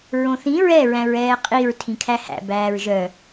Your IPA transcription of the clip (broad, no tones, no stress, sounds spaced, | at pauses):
ɹ õ θ ĩ ɹ ɛ ɹ æ̃ ɹ ɛː qʼ i ɹ tʰ ĩ kʰ æ h æ̰ b æː ɹ ʒ œ